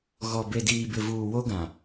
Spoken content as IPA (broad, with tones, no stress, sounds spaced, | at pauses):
ɣ ɔ˨ b e˨ d iː˨ b ɪ˨ v uː˨ w o˦ ɡ ã˨